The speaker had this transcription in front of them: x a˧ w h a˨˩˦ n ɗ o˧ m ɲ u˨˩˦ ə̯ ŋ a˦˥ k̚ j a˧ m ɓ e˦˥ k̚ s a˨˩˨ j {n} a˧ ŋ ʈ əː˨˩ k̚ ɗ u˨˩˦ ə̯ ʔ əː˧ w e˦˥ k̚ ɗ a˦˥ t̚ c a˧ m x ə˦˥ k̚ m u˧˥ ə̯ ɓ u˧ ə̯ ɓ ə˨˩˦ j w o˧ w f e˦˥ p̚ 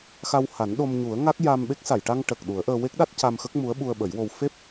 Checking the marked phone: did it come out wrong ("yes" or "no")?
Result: yes